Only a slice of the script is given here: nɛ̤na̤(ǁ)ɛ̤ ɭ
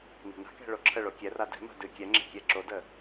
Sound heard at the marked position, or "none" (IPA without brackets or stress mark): k